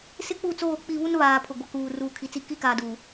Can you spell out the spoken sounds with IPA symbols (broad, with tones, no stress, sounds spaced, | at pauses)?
s ɪ˦ k͡p u˦˨ t͡s oː˦˨ k͡p i˦˨ β u˦ n β aː˨ pʰ ʊ˨ ɡʷ ɛ˨ k uː˨ r uː˨ kʰ i˨ t͡s i˦˨ k i˦ k aː˨ d uː˨